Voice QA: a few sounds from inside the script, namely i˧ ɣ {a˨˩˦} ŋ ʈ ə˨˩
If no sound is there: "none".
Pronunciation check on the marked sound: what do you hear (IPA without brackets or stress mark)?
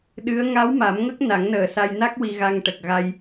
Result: a˧